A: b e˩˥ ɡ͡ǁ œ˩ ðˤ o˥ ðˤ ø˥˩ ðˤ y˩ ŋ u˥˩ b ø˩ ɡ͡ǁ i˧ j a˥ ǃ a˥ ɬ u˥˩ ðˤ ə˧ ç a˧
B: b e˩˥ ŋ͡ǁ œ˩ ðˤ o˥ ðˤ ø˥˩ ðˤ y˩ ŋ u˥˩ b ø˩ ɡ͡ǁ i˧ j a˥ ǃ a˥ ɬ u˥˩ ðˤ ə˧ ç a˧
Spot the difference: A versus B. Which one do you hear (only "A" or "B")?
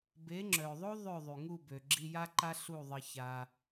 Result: B